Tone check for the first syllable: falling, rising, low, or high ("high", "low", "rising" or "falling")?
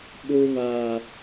high